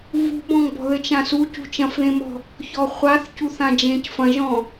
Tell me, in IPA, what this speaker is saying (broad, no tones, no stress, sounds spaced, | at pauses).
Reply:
v ṳ b ɔ̃ ŋ b ɔ̤ ð ɘ t͡ʃ ã s u c ṳ t͡ʃ ɐ̃ f ð ẽ m ɔ̤ | ç ɔ χʷ a θ c u θ ã d͡ʒ ẽ c f ɐ̃ ʒ ɔ̃